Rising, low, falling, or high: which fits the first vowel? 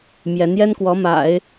rising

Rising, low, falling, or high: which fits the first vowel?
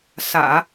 low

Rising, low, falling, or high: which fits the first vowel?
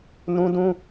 high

